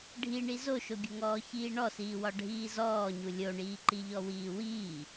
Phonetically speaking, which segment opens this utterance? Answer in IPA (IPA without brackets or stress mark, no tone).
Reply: ɖʱ